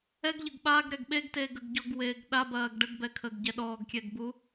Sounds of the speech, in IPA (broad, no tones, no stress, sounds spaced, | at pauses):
ɛ ɡ ʎ ə ɡ ɓ a ɡ ɾ ɛ ɡ ɓ e ɡ t eː ɡ ə ɡ ɟ ɔ ɡ w eː ɡ ɗ a b ɐː ɡ ɖ ə ɡ b ɛ kʰ əː ɡ ɟ ɛ ɗ ɔː ɡ kʲ ɛ ɡ b u